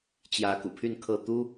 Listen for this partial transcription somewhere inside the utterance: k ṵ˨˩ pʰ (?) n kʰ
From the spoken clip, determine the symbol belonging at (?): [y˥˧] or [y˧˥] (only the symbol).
y˥˧